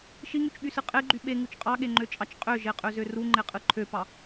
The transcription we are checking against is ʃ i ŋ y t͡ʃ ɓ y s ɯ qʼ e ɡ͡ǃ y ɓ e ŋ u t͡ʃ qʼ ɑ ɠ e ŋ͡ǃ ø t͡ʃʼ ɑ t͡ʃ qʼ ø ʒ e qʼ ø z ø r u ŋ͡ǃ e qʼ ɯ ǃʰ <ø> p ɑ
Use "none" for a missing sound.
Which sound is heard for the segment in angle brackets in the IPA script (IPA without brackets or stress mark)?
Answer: ø